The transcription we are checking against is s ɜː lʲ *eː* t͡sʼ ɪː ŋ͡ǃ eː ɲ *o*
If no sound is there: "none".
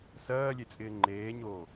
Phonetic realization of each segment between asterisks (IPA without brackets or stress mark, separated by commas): e, oː